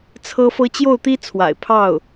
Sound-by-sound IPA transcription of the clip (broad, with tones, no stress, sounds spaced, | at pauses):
t͡sʰ ɤ˥ f ɤ˥ t͡ɕ j o˥˩ ʊ̯ t̪ i˥ t͡sʰ w a̰˨˩ ɪ̯ pʰ ɑ˥˩ ʊ̯